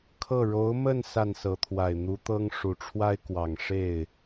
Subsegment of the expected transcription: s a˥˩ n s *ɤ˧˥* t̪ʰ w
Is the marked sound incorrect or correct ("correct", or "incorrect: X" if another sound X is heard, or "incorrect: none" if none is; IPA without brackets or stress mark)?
correct